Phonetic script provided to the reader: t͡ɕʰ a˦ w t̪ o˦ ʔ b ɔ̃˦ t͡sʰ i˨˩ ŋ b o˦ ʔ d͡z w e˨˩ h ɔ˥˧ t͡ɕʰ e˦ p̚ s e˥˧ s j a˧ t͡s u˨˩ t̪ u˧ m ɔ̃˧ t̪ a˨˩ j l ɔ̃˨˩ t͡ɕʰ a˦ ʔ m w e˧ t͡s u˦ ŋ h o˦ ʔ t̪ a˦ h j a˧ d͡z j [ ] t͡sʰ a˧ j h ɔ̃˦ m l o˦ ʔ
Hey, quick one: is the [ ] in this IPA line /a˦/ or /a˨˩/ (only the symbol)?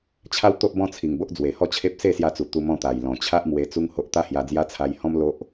a˦